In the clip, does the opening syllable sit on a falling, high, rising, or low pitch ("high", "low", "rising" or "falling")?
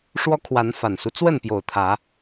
high